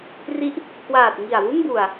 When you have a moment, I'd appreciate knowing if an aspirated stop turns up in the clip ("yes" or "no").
no